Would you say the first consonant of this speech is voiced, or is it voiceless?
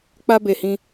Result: voiceless